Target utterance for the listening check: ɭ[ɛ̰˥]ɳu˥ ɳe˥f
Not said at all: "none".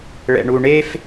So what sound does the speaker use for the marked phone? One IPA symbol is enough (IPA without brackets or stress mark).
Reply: ɛ̰˥